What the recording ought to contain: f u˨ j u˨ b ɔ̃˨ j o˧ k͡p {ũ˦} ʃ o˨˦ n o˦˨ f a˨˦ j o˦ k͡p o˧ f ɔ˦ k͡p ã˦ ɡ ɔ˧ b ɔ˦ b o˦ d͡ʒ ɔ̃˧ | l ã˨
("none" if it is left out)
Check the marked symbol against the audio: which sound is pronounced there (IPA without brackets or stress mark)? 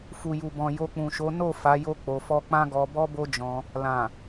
ũ˨